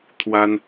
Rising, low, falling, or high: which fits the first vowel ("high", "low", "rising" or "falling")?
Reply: high